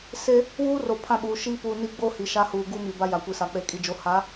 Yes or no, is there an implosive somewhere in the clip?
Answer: yes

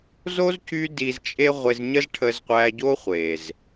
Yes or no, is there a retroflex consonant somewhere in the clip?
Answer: yes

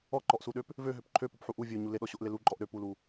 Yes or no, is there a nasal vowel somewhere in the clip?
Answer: no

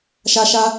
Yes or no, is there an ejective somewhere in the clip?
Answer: no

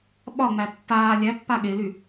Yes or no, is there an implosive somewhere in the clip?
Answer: yes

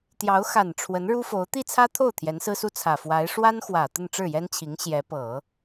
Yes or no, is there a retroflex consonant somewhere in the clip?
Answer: yes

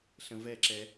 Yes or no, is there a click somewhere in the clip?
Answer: yes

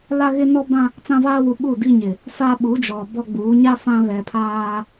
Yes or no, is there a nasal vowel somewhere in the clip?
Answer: yes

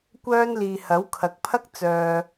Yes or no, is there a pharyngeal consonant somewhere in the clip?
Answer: no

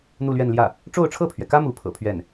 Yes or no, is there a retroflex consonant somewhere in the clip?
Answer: yes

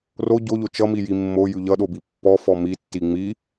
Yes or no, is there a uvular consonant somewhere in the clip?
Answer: no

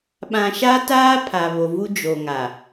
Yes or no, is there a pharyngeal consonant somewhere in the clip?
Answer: no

